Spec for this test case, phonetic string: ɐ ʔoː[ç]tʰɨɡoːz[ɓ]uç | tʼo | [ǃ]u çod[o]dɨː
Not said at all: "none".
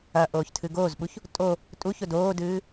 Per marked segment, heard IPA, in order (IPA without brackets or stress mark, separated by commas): ç, ɓ, tʼ, oː